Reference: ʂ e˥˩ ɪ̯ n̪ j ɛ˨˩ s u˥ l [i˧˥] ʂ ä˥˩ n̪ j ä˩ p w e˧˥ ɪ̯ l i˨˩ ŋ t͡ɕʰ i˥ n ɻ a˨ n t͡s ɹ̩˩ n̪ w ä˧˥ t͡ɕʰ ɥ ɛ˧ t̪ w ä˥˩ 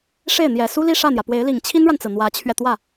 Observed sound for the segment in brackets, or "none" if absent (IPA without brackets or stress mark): i˥˧